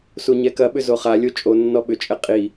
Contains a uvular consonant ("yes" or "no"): yes